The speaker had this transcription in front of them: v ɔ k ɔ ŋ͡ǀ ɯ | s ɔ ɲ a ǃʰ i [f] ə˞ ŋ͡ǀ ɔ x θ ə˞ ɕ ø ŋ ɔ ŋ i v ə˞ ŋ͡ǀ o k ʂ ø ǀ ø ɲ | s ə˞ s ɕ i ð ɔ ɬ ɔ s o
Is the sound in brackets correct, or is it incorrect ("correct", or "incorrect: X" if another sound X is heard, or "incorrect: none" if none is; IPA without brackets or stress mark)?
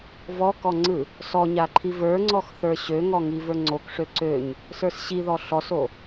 incorrect: v